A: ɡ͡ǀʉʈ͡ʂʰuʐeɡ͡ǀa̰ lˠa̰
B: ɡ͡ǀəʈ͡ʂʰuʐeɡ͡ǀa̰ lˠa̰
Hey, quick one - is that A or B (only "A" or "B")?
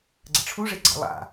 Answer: B